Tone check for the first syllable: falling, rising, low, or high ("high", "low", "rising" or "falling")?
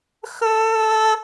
high